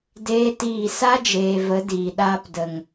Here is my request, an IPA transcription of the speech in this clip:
d eː˦ t iː˦˨ s a˦ d͡ʒ eː˨ v ə˨˦ d iː˨ ɗ aː˧ p d ə˨ ŋ

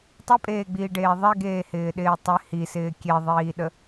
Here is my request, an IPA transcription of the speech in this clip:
tˤ i pʼ eː ɡ͡b iː ɖ eː ðˤ e ɡ eː h ɪː ɗ ɪː tˤ ɪ h i s ɪː kʲ e ðˤ iː ɗ ə

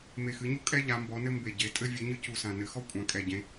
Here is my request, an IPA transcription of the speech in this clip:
m e˨˩ x ɨ˩˧ ɲ u˦ kʼ ɛ˦ ʎ a˩˧ m b ɔ˩˧ n ɘ˦ m b e˨˩ ɟ e˩˧ tʼ ɘ˦ vʲ ɨ˩˧ ɲ ɨ˦ c u˨˩ s ã˨˩ n ɘ˩˧ x ɔ˦ kʷʼ ã˩˧ kʼ ɛ˨˩ ɟ ẽ˩˧

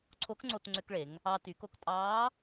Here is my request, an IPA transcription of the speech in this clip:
ǀʰ o˧˥ k ŋ͡ǀ o˧ t ŋ͡ǀ ø˧ k ɭ e˩˧ ŋ | ɑ˧ t y˩˧ k o˧ k tʼ ɑː˧˥

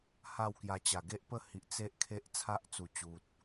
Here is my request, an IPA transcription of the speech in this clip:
h a˥˧ w k j a˧ t͡ɕ a˨˩ ɡ e˦ ʔ p ə˥˧ h i˨ ʔ t͡s e˦ ʔ kʰ e˦ ʔ t͡sʰ a˦ ʔ t͡s u˨˩ t͡ɕ u˨ t̚

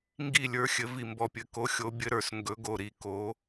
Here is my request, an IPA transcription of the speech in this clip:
ŋ ɡ i˦˨ lʲ ə˞˧˥ xʲ ɘ˧˥ v i˦˨ m b ɔ˦˨ pʲ ɘ˦˨ k o˧˥ xʲ o˧˥ bʲ ɘ˧˥ ɾ ə˞˦˨ s ŋ ɡ ɵ˧˥ ɡ o˦˨ ɾ i˦˨ k o˧˥

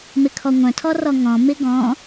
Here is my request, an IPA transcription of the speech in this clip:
m ɪ kʰ ɔ ŋʷ œ̃ tʰ ɔ r ɔ ŋ ɔ̃ m ɪ ɡ ɔ̃

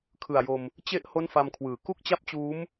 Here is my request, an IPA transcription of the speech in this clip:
kʰ ɯ˨˩ a̯ j o˧ m | t͡ɕ e˦˥ ʔ h o˥˩ n f a˧ m kʰ w ɯː˩˦ k u˥˩ k̚ t͡ɕ a˥˩ p̚ t͡ɕ uː˦˥ m

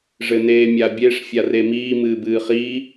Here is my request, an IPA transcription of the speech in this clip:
ʐ ɘ n eː mʲ a bʲ e ʂ fʲ a r e m iː m ɨː b ɨː χ i

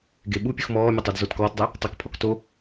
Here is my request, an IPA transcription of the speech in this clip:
ɡ e ɓ u pʲ u x m ɔː mʲ ʊ tˤ o d z o t k ɔː t dˤ ɛ | tˤ ʌ k pʰ ɔ k t o

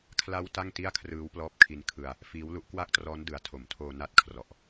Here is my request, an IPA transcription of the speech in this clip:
kʰ l a˦˥ w t a˥˩ ŋ t i˥˩ a̯ kʰ r ɯː˦˥ w p l ɔː˦˥ p̚ kʰ i˦˥ n kʰ ɯ˧ a̯ | f iː˦˥ w l u˦˥ ʔ k w a˥˩ k̚ t r ɔː˦˥ n d ɯ˩˦ a̯ tʰ o˩˦ m tʰ oː˧ n a˦˥ t̚ kʰ r ɔ˨˩ ʔ

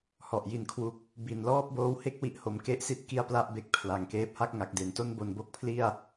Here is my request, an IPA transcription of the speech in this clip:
h ɔ˨˩ ʔ j i˧ n kʰ w u˦˥ k̚ | b i˨˩ n l ɔː˥˩ p̚ b oː˦˥ w h e˥˩ k̚ w i˦˥ ʔ h o˧ m k e˥˩ ʔ s i˥˩ t̚ k i˥˩ a̯ p l a˥˩ ʔ b e˦˥ k̚ pʰ l a˨˩ ŋ k eː˦˥ p̚ h a˥˩ k̚ ŋ a˨˩ k̚ d e˨˩ n t o˥˩ n b o˧ n b o˦˥ k̚ pʰ l i˥˩ a̯

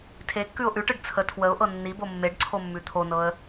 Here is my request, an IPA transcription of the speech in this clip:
tʰ e kː ʉ ʊ̯ ʔ ʉ ʈ ɯ ɖ t͡sʰ ə tʰ w ə ʊ̯ ʔ ɤ nː i b o mː e ɖ ǀʰ o mː ʉ t̪ʰ o n ɤ ə̯

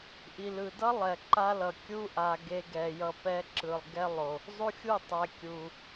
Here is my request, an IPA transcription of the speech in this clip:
ʔ i˨ l ɯ˨ d ʌ˦ lˠ ɛ˨ ǃ a˦ l ʌ˨ kʲ u˦ ʔ a˨ ɡ e˧ ɡ ɛ˨ j ʌ˧ p ɛ˦ ǁ ɯ˨ lˠ ɡ ɛ˦ lˠ o˨ | zˤ u˦ xʲ u˦˨ tˤ ɛ˨ kʲ u˨

